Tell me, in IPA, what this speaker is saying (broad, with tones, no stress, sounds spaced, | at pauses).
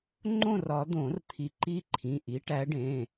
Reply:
ŋ͡ǃ õ˥˨ r ɒ˨˩˦ d̪ õ˨˩˦ r t̪ʰ i˨˩˦ ǃ i˦˥ ǃʰ ĩ˩˧˩ ʔ i˨˦ ʈ æ˨˦ ɖ ẽ˩˧˩